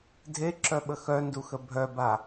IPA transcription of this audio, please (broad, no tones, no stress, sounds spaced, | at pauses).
dʱ e ǁ œ ɓ ə x œ n d u x ə bʱ œ b a